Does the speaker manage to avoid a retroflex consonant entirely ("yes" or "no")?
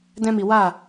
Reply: yes